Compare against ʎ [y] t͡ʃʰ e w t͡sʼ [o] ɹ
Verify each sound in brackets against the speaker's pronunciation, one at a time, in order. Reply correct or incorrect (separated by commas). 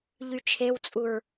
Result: correct, incorrect